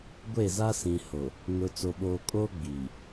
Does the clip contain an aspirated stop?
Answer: no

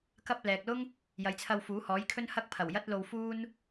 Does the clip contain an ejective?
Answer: no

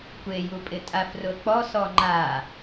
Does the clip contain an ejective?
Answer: yes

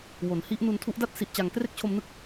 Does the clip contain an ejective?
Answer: no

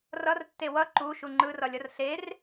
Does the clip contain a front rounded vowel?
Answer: no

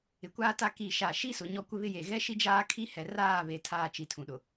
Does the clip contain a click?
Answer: no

